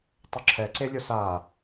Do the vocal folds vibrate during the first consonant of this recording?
no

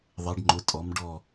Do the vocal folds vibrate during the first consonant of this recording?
yes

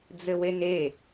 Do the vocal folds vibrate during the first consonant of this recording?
yes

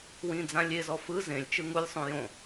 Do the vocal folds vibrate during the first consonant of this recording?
yes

